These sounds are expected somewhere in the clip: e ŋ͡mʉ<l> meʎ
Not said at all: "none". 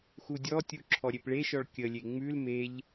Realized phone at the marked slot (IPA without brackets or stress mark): l